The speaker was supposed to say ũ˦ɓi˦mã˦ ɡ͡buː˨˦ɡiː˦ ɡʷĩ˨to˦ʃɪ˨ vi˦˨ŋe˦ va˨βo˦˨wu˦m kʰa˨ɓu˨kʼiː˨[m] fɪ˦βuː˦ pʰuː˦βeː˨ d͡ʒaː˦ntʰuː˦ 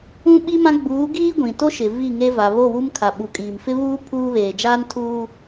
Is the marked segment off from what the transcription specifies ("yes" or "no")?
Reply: no